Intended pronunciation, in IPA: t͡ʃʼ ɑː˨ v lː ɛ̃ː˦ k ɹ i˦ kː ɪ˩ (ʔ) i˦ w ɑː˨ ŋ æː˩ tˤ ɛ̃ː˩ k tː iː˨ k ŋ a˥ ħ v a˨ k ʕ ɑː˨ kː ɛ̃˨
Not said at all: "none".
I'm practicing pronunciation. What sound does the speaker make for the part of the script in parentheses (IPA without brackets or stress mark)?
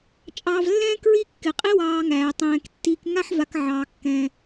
qʼ